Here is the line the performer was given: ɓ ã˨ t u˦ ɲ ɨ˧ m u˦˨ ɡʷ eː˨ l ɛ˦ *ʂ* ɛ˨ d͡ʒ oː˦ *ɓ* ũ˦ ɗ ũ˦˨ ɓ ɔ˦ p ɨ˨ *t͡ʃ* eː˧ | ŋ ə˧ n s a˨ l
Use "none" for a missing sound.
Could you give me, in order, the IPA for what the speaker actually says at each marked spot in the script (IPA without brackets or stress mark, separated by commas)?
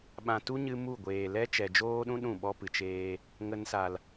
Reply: t͡ʃ, ɗ, t͡ʃ